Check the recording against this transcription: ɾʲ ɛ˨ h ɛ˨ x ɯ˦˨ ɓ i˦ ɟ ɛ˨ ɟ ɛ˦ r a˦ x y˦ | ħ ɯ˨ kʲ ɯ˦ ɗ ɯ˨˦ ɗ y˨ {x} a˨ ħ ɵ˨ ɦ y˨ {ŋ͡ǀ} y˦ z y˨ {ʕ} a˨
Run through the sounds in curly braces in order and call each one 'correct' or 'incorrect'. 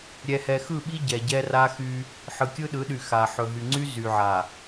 correct, correct, correct

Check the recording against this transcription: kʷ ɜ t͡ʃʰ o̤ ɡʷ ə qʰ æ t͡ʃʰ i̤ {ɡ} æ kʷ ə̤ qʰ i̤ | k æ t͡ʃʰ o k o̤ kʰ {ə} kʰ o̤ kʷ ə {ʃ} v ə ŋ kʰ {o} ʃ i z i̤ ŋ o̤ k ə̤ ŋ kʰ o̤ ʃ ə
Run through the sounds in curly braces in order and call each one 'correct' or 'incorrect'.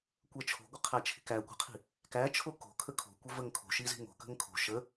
incorrect: k, correct, incorrect: none, incorrect: o̤

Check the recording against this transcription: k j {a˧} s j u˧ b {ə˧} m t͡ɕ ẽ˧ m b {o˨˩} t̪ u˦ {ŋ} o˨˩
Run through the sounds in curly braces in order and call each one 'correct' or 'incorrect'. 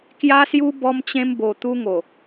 correct, incorrect: ɔ˧, correct, correct

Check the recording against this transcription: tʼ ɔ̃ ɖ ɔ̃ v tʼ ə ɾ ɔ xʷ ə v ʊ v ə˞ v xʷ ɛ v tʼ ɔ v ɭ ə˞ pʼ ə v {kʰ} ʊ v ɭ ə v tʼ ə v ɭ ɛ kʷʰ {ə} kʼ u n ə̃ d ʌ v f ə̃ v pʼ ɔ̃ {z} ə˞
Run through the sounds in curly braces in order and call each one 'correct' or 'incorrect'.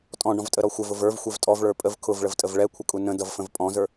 correct, correct, correct

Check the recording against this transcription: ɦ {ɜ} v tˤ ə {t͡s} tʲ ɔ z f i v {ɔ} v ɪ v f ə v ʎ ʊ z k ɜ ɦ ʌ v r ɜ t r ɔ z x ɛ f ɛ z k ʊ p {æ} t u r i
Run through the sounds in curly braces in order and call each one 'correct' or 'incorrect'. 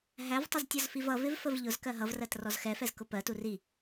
incorrect: æ, incorrect: z, incorrect: ʌ, incorrect: ɜ

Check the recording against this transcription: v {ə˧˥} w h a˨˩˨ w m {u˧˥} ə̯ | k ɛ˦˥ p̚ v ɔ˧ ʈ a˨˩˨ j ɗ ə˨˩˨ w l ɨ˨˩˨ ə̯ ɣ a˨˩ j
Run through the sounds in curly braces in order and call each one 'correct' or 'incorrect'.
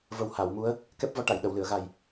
incorrect: ə˨˩, correct

